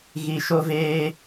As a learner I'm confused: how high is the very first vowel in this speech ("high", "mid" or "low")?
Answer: high